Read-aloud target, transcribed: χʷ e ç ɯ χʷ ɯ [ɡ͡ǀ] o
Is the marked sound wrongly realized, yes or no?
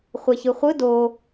yes